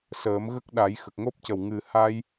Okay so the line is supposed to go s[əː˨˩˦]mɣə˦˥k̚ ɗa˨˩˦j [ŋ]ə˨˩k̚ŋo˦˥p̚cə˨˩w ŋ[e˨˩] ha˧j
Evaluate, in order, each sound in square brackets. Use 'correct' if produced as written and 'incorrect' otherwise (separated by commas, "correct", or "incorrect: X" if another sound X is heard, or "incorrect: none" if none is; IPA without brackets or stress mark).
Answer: correct, incorrect: x, incorrect: ɨ˨˩